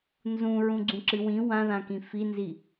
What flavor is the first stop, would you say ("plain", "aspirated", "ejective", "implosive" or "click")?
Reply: click